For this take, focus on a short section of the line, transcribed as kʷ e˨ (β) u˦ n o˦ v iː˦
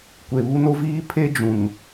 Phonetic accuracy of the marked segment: correct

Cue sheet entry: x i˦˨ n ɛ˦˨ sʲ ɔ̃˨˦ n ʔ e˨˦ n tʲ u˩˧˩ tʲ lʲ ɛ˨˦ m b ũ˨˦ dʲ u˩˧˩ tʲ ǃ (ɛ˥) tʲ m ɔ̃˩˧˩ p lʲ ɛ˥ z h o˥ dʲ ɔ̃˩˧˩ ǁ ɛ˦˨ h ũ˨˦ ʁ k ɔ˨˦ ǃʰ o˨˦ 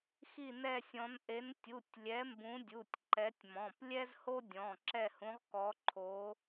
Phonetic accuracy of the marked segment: incorrect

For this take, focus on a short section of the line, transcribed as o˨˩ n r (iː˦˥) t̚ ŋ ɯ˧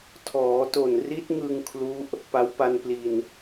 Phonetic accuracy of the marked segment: incorrect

